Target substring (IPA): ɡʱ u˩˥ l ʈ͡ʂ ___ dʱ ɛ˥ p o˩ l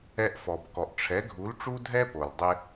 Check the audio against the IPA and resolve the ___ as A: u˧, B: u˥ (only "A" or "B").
B